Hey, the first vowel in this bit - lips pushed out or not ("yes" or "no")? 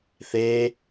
no